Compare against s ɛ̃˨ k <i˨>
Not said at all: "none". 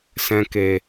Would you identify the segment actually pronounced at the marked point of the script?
e˨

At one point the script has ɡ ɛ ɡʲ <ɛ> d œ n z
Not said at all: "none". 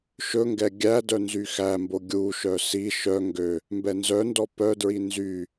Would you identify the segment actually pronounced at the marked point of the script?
æ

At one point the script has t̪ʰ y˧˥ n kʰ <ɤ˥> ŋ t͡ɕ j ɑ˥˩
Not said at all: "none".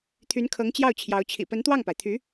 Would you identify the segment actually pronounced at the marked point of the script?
ɤ˧˥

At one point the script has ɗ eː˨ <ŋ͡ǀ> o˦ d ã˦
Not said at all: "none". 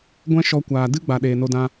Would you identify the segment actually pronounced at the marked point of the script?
n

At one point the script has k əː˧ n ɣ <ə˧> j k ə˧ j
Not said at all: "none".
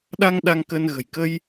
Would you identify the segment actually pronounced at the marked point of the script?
ə̤˨˩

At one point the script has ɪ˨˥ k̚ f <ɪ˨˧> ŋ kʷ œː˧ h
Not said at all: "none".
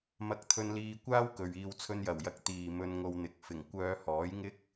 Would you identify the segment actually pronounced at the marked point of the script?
ɪ˨˩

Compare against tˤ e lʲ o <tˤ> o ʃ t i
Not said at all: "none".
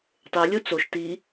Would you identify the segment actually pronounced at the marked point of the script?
t͡s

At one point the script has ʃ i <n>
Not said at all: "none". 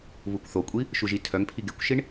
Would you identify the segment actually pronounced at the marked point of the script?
ɳ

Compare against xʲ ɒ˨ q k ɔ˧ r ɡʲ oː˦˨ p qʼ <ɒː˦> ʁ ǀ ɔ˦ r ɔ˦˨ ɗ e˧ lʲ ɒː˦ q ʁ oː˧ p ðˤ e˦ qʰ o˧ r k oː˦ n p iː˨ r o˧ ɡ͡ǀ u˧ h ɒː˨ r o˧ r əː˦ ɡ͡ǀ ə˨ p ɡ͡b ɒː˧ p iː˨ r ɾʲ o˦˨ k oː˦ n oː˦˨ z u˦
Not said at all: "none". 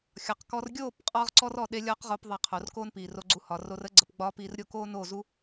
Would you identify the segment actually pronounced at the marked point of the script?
ɒː˦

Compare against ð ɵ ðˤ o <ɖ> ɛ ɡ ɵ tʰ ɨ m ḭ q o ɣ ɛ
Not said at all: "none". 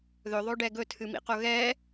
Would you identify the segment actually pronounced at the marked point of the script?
ɖ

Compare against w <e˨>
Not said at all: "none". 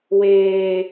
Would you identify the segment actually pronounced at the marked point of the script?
eː˨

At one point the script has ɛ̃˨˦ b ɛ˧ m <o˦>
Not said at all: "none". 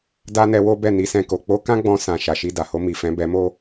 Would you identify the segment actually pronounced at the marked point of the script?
o˦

